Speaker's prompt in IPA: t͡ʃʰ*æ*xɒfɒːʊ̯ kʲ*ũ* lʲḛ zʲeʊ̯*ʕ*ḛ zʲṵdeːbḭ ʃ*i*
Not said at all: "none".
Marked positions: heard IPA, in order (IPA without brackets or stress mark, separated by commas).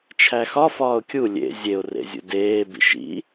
æ, u, r, ḭ